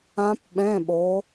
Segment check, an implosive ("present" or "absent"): present